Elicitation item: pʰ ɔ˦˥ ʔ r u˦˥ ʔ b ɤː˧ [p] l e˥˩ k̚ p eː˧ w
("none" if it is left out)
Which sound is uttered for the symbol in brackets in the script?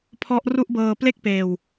p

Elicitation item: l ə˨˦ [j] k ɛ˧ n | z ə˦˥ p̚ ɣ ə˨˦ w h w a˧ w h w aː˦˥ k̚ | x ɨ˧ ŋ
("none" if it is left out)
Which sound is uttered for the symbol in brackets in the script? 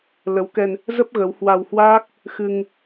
w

